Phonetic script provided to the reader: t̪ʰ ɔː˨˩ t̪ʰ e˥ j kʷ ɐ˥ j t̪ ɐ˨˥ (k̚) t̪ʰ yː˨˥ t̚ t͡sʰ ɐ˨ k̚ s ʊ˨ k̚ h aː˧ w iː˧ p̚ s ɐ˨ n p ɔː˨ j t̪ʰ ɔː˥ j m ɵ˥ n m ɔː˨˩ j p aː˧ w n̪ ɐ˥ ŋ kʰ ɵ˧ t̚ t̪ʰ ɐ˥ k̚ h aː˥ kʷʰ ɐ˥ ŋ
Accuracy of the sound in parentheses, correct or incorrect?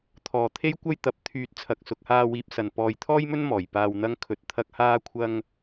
incorrect